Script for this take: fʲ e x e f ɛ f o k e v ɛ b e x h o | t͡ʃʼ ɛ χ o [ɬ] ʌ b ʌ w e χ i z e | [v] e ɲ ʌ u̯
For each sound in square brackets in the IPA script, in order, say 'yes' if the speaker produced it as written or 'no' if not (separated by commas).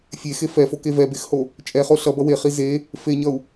yes, no